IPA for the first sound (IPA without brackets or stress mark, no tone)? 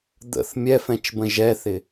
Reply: d̪